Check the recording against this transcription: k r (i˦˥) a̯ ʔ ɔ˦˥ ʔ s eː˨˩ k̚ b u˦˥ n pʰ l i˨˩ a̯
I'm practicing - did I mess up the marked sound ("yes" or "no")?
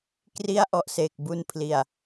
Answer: no